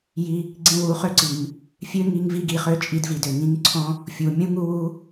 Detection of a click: present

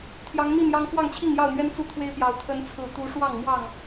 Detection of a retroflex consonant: present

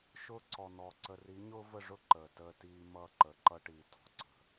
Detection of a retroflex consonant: present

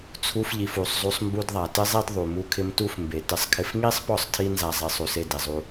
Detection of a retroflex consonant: absent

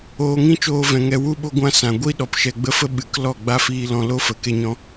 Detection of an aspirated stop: absent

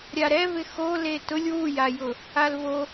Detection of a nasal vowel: absent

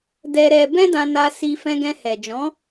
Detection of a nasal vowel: present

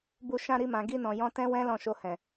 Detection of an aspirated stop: absent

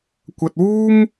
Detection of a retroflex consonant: absent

